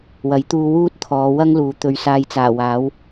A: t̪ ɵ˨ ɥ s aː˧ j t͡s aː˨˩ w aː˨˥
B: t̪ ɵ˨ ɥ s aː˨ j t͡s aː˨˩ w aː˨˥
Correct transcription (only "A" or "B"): A